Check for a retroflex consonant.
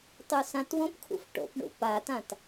present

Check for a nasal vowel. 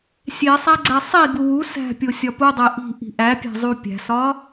absent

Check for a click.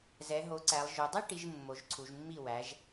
present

